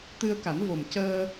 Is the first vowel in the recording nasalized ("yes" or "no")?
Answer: no